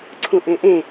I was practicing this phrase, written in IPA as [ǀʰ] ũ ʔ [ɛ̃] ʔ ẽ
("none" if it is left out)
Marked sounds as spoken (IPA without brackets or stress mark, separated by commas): ǀʰ, ẽ